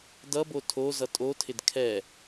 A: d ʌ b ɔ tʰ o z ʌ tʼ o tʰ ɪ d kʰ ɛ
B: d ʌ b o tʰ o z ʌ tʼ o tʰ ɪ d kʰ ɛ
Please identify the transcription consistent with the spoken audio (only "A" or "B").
B